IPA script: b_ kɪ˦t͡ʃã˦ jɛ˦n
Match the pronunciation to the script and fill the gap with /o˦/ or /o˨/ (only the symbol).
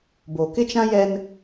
o˨